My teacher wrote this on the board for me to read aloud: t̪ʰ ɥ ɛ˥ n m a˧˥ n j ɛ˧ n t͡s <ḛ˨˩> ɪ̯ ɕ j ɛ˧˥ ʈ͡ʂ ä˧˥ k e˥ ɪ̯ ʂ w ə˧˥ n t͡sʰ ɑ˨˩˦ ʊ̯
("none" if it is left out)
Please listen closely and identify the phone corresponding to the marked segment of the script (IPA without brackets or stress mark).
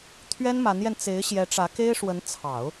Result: e˧˥